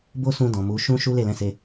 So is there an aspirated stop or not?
no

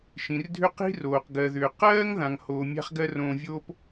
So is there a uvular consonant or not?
yes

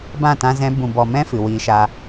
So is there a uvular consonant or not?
no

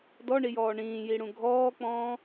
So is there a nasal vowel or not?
yes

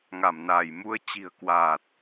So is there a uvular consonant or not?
no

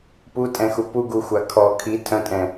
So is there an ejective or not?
yes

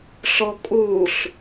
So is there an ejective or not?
yes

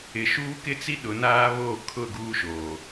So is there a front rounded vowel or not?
no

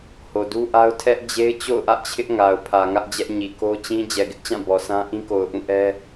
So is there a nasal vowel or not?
yes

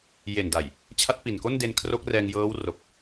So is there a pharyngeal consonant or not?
no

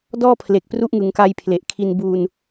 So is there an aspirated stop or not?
yes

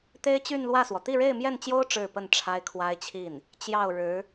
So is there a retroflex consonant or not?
yes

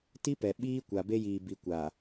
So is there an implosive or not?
yes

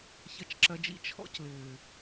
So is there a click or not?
yes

